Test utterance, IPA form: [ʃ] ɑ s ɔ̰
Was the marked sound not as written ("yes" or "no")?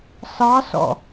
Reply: yes